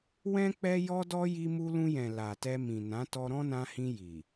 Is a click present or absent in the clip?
absent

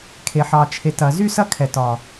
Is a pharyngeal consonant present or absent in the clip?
present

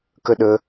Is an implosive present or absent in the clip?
present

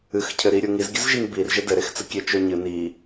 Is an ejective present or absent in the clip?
absent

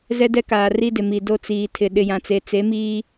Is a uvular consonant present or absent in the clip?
absent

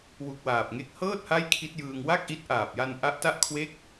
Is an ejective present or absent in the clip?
absent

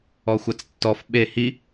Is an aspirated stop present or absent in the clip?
absent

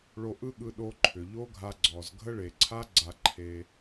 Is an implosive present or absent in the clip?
present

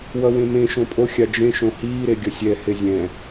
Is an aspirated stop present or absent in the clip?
absent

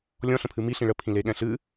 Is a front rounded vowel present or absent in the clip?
absent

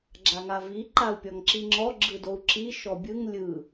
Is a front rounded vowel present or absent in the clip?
absent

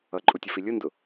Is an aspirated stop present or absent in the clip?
absent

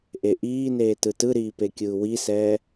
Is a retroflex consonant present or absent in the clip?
absent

